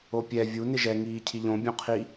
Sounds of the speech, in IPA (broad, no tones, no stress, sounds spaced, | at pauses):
o pʲ ɛ vʲ u n ɪ ʒ ɛ ŋ iː cʰ i ʎ õ bʲ õ qʰ i